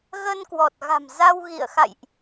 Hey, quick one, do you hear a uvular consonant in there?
no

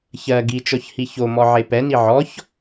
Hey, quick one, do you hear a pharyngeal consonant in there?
yes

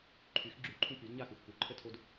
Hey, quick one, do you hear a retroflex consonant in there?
no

